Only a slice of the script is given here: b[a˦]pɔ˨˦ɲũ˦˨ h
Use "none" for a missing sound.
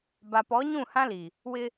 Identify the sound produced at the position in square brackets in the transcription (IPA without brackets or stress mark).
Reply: a˨